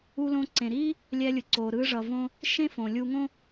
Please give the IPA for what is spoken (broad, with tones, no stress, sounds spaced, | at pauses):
u˧ l õ˧ ǀ ẽ˩ ɾ iː˥ | lʲ ɛ˧ lʲ ɯ˩ ǀ oː˩ ɾ ɯ˧ ʐ ʌ˩ v õ˧ | ʃ ẽ˥ f õ˩ lʲ u˧ ŋ õ˥